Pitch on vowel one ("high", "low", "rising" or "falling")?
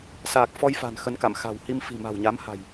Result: low